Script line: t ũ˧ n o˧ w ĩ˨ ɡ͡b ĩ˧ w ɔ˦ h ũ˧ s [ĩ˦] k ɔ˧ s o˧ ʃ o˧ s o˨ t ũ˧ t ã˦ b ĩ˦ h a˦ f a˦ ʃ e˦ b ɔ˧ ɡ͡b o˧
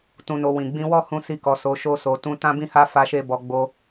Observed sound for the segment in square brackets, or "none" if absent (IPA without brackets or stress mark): i˦